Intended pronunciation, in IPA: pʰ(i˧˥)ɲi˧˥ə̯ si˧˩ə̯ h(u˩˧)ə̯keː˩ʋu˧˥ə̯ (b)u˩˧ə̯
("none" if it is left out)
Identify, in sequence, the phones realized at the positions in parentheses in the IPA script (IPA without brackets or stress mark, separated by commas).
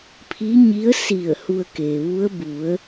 i˧˥, u˧, b